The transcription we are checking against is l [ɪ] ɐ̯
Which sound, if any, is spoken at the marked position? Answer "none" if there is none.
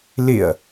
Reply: ɪ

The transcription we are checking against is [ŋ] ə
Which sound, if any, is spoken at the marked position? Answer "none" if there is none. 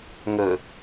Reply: ŋ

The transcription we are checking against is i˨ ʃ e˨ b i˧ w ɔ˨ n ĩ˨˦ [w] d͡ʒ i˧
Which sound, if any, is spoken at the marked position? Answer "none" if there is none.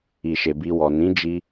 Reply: none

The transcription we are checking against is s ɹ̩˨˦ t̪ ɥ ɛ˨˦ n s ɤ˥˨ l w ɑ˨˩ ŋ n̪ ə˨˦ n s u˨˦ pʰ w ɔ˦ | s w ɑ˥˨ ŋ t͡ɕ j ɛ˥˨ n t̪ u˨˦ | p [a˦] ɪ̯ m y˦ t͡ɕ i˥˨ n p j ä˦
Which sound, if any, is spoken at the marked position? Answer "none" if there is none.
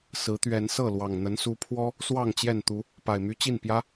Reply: a˨˩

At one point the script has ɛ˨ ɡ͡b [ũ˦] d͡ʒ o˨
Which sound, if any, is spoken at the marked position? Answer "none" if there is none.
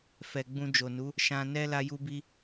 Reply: ũ˧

